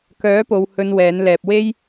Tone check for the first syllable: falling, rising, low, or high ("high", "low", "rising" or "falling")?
rising